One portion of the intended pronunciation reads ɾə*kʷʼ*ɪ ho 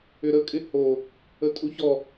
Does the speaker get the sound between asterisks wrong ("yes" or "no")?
yes